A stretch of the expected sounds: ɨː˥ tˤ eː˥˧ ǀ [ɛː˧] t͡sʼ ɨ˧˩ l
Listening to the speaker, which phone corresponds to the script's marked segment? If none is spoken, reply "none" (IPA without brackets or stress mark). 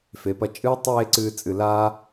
ɨː˧